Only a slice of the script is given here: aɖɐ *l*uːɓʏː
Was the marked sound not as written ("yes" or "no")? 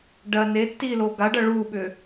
yes